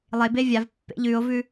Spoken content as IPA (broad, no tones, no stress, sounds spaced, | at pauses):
lˠ e b e vʲ a v pː ḛ ʎ ʉ o̯ v ʉ